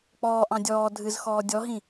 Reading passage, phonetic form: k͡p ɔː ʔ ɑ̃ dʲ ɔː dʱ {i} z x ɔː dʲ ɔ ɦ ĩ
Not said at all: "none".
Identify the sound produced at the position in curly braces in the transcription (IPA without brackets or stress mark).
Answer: ɨ